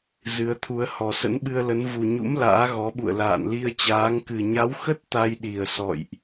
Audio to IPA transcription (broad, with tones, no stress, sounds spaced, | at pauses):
z ɨ˨˦ ə̯ t̪ʰ u˨˦ ə̯ h ɔ˨˩ s ə̰˧˥ n ɓ ɨ˧ ə̯ l ə˨˦ n v u˨˩ ɲ ṵ˧˥ m l a̰ː˧˥ ɣ ɔ˨˦ ɓ ṵ˧˨ ə̯ l a̰ː˧˨ n l i˧ ə̯ t͡ɕ aː˨˦ ŋ k ɨ˨˩ ɲ a˨˦ w x ə˦˥ t̚ t̪ a˧ j ɗ i˨˩ ə̯ s ɔ̰˧˨ j ʔ